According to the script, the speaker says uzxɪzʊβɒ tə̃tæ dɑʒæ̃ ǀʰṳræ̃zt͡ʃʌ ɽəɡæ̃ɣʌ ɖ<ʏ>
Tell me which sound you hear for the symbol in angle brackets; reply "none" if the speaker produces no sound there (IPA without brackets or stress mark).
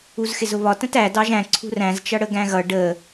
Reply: ə